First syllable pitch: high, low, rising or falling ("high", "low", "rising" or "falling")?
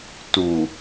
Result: low